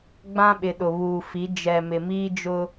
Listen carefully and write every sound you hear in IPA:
ɡ͡b ã˦ ɓ ɪ˨ ɗ ʊ˨ β uː˨ f i˨˦ d͡ʒ ɛ˨ m ɪ˨ m iː˦ d͡ʒ ʊ˦

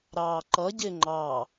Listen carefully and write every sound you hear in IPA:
ɾ ɑː ǃ ʌ ɟ ɪː ŋ͡ǃ ɑ

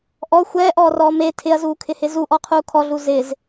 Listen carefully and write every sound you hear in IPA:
ʔ ɔ xʷ ɛː ʔ ɔː r ɔː m e tʰ ɪ ɐ̯ z uː kʰ ɪ h ɪ z u ʔ ɔ qʰ uː kʰ ɔ ɮ u z ɪ z

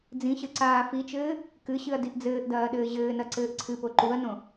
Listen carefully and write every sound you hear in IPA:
d͡z ĩ ɕ ɘ ǀ aː f i t͡ʃ ɘː | k ɨ ɕ ɨ ɐ̯ d i ʔ d͡z ɘː ʔ d ɐː ɗ ɘː ʑ ɘː n ɐ ǀ ɘː ʔ ǀʰ ɨ p o ǃ u ɐ̯ n õ

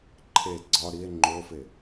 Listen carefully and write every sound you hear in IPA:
ǃʰ e ɡ͡ǀ ɒ ɾ i e̯ ŋ͡ǃ o f e

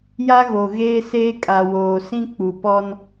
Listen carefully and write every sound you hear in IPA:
j a˦ ɣ o˨ ɣ eː˦ s eː˦ kʼ a˨ w oː˨ s ĩ˦ k͡p u˨ p ɔ˦ n

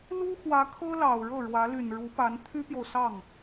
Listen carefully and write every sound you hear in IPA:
l u˥ x w ä˧˥ kʰ ɤ˥ l ɑ˨˩ ʊ̯ ɻ ɤ˥˩ ɻ w ä˧˥ l y˨˩ n ɻ u˧˥ p a˧˥ n t̪ʰ y˥ p j o˨ ʊ̯ s ɑ˥˩ ŋ

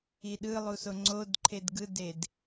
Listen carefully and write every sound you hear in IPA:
i ɗ ɯ lˠ u s o ŋ͡ǀ o d ǃʰ e d ɡ ɯ d e d

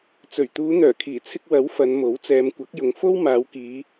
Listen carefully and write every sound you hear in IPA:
t͡s ɵ˨˩ ɥ t̪ uː˨˧ n̪ œː˨˩ kʰ iː˨˩ t͡sʰ ɪ˧ k̚ w ɐ˨˥ w f ɐ˨˧ n m o˨˥ w t͡s ɛː˨˧ m kʷ ɐ˨˥ k̚ j ʊ˨ ŋ f o˥ w m aː˨˧ w k iː˨˧

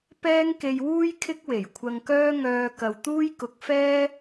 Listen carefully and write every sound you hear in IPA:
p ɛː˥ ŋ k e˧ j w uː˥ j kʰ ɪ˥ k̚ w e˨˩ j kʷʰ ɐ˧ ŋ k œː˥ ŋ œː˧ k ɐ˨ w t̪ uː˥ j k ʊ˨˥ k̚ f ɛː˥

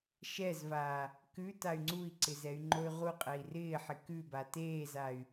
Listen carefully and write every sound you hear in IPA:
ʃ ɛ z v aː | k ʉ t a y̯ ŋ͡ǀ u i̯ ǀ ɪ z ɛ y̯ ŋ͡ǃ o y̯ ʁ u qʼ ɛ i̯ r ɪː ħ ɪ k ʉ b a t eː z a y̯

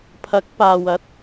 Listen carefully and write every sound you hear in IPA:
pʰ ɐ˨˥ k̚ p aː˨ w ɐ˨˥ t̚

